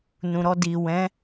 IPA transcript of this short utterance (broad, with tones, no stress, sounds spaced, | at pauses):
n ũ˨ ɾ ɔ˧ d i˨ w ɛ̃˨˦